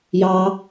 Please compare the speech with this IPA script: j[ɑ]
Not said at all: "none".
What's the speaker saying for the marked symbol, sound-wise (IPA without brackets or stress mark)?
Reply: ɑ